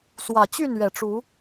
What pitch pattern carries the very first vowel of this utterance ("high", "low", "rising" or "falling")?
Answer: low